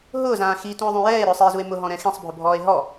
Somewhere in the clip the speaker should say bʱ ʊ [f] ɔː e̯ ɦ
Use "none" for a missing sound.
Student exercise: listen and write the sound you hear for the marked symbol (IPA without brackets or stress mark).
bʱ